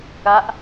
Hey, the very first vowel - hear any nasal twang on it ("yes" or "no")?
no